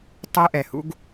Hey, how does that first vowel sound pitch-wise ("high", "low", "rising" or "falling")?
high